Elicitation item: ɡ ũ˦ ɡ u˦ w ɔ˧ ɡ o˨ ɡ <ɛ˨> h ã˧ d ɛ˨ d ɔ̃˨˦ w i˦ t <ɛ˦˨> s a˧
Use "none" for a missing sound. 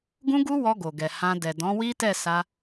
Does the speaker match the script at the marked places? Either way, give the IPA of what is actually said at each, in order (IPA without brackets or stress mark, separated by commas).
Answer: ɛ˨, ɛ˦˨